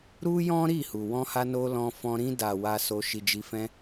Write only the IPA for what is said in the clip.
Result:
ɾ u˦ j ɔ̃˦ ɾ i˦˨ h u˨ w ɔ̃˧ h a˧ n o˧ l ɔ̃˧ f ɔ̃˧ ɾ ĩ˧ d a˨ w a˧ s o˧ ʃ i˧ d͡ʒ i˧ f ɛ̃˦

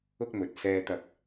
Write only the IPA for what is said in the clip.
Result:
ʊ˥ k̚ m ɵ˨ t̚ s ɛː˧ t̪ ɐ˧ k̚

